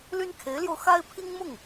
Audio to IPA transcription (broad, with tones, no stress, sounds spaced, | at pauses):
l y˥ n kʰ e˧˥ ɪ̯ l j o˧ ʊ̯ x a˥ ɪ̯ pʰ i˥ ŋ m ʊ˥˩ ŋ